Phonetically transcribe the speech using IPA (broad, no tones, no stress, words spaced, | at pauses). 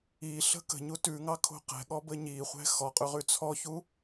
iɬə̤ kə̤ ɲutʉŋɑ kʰo̤qɛ̤ɠɔ bəɲiχʷɛ̤ xɔqʼʉ ʁʉt͡sʰɔçu